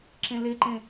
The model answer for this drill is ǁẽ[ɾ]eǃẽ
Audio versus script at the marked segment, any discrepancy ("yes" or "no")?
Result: yes